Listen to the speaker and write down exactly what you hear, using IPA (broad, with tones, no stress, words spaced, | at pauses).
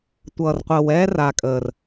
tʷʌː˨rqʷəː˨w ɛː˦ra˨kʼəː˨r